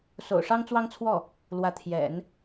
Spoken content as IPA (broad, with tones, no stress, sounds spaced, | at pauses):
s o̰˨˩ ʊ̯ ʂ ɑ˥ ŋ t͡s w ɑ˥ ŋ t͡sʰ w ɔ˥˩ | l w ä˧˥ t̪ʰ j ɛ̰˨˩˦ n